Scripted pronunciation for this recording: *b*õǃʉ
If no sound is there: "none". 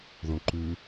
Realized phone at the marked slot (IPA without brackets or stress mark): ð